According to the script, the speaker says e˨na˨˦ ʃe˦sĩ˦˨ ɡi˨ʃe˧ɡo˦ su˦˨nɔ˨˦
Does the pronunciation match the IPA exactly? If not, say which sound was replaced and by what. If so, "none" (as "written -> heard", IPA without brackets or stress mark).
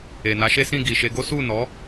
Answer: none